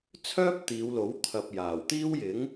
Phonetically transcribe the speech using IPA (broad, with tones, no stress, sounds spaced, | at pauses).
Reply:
t͡sʰ œː˥ p̚ t̪ iː˨˧ w l o˨˥ w t̪ʰ ɐ˨ p̚ j aː˨˩ w t̪ iː˥ w j ɪ˨˥ ŋ